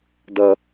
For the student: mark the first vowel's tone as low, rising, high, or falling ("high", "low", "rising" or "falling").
high